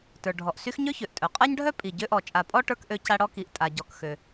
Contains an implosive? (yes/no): no